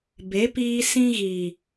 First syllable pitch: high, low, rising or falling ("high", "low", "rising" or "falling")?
rising